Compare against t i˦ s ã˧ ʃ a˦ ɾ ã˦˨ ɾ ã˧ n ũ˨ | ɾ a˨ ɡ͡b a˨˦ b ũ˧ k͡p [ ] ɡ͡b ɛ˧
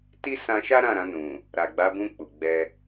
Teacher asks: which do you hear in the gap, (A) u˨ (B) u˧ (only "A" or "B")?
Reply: A